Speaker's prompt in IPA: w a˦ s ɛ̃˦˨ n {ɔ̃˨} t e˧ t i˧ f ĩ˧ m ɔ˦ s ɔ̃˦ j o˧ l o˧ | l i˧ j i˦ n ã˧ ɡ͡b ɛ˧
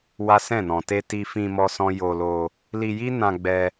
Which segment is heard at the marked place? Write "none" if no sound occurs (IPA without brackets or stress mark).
ɔ̃˨